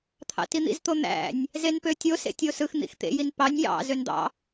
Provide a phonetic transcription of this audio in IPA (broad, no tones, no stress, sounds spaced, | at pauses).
t̪ʰ ɑ̰ t i n̪ ḭ z t̪ o n̪ æ̰ nʲ | z e n p ø tʲ o s ḛ tʲ o s ɯ x n̪ ḭ x t̪ ḛ j i n p ɑ nʲ j ɑ̰ z ø n d̪ ɑ̰